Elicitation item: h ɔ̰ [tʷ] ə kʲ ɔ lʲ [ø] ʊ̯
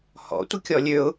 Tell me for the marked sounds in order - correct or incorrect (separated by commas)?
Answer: correct, correct